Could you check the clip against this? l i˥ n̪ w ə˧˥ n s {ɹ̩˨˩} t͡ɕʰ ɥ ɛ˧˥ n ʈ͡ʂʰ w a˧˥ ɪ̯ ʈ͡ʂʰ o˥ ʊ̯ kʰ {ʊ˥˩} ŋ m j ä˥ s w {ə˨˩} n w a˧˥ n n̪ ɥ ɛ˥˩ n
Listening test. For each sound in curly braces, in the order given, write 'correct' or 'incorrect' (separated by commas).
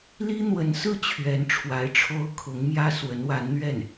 incorrect, incorrect, incorrect